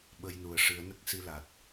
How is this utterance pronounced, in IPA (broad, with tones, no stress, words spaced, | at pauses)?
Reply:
ɓə˧jnu˨˩ə̯ ʂɨ˨˩˦ə̯nə˦˥k̚si˧la˨˩t̚